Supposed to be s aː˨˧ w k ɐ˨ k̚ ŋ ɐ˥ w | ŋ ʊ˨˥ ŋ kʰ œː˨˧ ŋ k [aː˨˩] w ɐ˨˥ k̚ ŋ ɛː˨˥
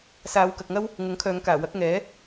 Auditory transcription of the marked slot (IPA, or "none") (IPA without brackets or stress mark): aː˨˩